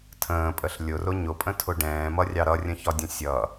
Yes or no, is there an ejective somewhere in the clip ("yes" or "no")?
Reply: yes